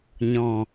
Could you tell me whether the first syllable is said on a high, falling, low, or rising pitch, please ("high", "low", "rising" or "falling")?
low